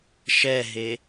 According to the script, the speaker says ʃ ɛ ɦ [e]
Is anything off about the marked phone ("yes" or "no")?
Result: no